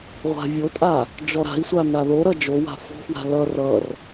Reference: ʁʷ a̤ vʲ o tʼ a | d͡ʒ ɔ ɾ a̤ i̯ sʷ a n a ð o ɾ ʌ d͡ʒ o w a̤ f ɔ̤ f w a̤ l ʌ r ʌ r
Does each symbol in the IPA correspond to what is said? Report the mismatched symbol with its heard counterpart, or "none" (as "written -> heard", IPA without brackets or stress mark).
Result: none